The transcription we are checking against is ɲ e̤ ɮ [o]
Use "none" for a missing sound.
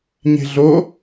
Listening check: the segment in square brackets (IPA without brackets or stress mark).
o